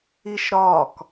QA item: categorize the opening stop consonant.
plain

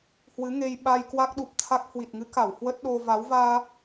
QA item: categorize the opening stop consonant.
implosive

